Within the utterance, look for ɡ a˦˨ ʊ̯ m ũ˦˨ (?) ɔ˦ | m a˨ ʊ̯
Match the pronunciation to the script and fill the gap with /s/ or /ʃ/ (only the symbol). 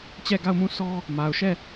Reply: s